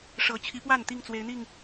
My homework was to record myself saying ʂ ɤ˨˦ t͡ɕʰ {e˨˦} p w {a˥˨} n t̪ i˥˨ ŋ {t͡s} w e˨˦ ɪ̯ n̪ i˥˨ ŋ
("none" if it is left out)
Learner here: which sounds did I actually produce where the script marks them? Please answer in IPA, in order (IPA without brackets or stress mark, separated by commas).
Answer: i˨˦, a˥˨, t͡s